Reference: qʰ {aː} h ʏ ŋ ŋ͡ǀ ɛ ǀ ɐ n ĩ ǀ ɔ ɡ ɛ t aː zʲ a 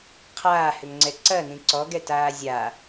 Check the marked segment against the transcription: correct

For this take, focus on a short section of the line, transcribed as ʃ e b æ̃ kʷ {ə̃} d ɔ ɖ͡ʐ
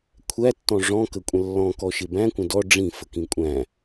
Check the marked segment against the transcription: correct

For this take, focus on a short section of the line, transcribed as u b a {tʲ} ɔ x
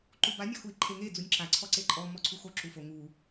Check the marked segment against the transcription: incorrect: nʲ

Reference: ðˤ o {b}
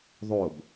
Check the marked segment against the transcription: correct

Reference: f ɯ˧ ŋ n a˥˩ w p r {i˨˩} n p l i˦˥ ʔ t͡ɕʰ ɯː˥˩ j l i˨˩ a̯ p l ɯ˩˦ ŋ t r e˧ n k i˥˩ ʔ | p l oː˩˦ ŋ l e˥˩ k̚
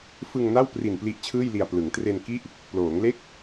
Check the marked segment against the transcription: correct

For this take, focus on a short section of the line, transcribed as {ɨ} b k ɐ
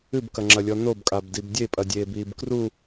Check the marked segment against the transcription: correct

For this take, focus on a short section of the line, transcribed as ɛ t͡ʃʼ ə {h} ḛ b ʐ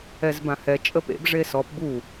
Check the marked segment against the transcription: incorrect: p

